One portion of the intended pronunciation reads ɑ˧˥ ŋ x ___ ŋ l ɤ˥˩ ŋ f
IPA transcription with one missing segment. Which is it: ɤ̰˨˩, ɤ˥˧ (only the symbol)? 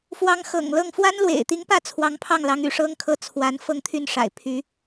ɤ̰˨˩